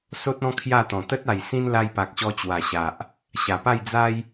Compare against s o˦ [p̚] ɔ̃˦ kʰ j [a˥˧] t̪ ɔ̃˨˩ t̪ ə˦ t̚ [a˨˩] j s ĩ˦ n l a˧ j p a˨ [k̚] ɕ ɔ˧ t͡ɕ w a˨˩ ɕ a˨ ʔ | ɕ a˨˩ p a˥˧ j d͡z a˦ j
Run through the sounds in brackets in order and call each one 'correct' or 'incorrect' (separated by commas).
incorrect, correct, correct, correct